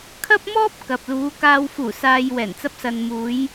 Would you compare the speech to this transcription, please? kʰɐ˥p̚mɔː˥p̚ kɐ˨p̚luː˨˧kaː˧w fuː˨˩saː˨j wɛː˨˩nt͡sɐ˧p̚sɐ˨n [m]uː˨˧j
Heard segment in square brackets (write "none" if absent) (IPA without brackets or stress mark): m